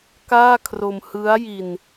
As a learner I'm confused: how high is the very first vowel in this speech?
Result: low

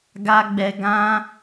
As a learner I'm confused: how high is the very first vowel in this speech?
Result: low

